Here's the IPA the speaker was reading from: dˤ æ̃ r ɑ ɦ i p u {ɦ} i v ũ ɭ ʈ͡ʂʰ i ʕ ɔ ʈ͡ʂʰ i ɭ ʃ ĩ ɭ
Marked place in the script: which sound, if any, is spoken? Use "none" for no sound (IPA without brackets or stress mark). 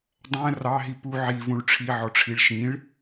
ʕ